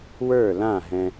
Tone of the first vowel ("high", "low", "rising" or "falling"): falling